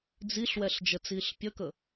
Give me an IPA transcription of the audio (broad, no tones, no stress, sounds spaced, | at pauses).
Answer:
d͡z i ɬ w ɛ ɬ d͡ʒ ə t͡s iː ɬ pʲ ə k ə